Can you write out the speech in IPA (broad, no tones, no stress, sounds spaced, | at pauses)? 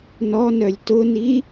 n ɔ n œ lʲ t ʊ n i